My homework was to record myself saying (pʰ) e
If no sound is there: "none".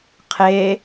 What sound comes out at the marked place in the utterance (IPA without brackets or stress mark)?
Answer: qʰ